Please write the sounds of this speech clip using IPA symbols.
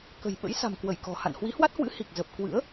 kə̤˨˩jɓə̰˧˥j sa̤˨˩mkwə˧˩j kɔ̤˨˩ha̰˧˨n hwi˨˦hwa˦˥t̚hwɨ̰˧˥ hi˨˩k̚zə˨˩p̚ kwɨ̰˧˥ə̯

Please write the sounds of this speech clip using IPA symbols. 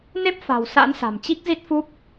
ne˦˥p̚fa̤˨˩w sa̰˧˥nsa̤˨˩mt͡ɕi˦˥k̚zi˦˥t̚ fu˦˥p̚

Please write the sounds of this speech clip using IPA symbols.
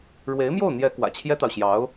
ɻwe˧˥ɪ̯mjo˥˩ʊ̯n̪jɛ˧˥ kwä̰˨˩t͡ɕʰjɛ˥t̪ɑ˨ʊ̯ ɕjɑ˧˥ʊ̯

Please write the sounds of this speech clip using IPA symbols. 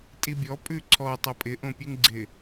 tʼibʲɔ pʼʉǀʰɔ tˤʌpʼɪ ʔõpʲʉŋɡ͡ǀɪ

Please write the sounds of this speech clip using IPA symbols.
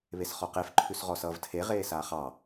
βesχɔqef ǃʰʉsʁɔsʌːvtʰe ʁeːsaːχɑ

